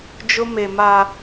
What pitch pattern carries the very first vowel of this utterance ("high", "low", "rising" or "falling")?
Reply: high